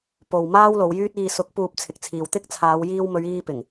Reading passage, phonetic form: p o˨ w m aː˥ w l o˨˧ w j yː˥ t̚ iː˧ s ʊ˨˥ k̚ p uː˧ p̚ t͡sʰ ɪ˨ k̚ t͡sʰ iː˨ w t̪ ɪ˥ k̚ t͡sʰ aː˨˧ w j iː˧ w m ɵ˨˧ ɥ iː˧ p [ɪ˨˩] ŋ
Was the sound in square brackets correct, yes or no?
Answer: yes